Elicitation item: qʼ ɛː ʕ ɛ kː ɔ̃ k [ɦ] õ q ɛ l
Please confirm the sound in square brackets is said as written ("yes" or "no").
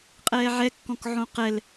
no